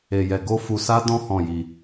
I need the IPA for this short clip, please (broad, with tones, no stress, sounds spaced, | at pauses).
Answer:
e˧ j ɛ˧ ɡ o˦ f u˧ s a˦ d ɔ̃˦ h ɔ̃˦˨ j i˧